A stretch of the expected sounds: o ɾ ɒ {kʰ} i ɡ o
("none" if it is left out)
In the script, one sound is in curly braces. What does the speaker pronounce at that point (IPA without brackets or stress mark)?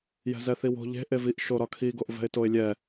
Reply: kʰ